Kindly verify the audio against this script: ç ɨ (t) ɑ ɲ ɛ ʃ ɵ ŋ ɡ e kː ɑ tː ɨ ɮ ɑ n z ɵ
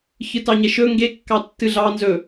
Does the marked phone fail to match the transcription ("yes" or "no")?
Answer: no